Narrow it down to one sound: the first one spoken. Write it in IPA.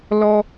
l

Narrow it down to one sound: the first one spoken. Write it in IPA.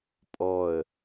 pʼ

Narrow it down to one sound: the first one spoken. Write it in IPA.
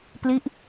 p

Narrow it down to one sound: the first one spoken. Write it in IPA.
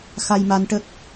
x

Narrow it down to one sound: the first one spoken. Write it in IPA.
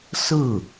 s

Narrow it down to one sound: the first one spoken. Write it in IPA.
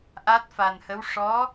ʔ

